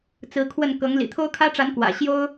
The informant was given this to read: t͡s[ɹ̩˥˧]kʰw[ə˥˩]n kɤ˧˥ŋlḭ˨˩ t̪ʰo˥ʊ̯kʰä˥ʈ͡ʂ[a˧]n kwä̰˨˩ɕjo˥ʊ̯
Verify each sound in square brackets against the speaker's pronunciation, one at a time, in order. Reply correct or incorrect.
incorrect: ɹ̩˧˥, correct, incorrect: a˧˥

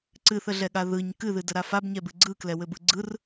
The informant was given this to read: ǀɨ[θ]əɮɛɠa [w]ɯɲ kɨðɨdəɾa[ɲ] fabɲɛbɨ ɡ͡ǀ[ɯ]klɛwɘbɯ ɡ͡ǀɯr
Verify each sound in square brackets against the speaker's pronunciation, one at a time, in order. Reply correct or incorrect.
correct, incorrect: ð, incorrect: none, correct

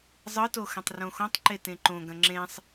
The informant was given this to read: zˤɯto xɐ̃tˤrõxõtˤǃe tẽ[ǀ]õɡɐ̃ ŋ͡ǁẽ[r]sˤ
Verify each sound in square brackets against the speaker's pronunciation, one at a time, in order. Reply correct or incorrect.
incorrect: ǃ, incorrect: none

